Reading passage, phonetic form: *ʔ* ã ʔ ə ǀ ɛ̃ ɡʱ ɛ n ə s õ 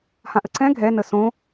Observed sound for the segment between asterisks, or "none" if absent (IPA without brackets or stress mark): h